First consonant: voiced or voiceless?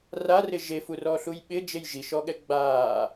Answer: voiced